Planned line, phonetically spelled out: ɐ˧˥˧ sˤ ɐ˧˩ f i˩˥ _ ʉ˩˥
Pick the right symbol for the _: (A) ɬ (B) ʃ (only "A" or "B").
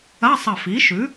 B